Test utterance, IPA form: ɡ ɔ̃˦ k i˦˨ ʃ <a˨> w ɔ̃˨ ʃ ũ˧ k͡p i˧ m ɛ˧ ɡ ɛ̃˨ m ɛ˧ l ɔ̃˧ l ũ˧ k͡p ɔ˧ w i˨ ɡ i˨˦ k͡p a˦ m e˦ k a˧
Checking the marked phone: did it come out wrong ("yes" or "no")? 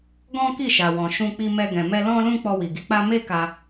no